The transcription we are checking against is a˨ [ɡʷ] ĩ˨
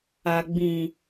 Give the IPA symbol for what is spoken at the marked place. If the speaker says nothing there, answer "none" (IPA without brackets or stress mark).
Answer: ɡ͡b